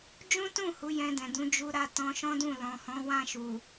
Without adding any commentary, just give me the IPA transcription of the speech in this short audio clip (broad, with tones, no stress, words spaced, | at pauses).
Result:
d͡ʒũ˦tũ˦˨ hu˨˦jɛ̃˧ dɛ̃˨dũ˨˦ d͡ʒu˧ ɾa˦ tɔ̃˧ʃɔ̃˦dũ˦˨ lɔ̃˨hɔ̃˨˦wã˦˨ ʃu˨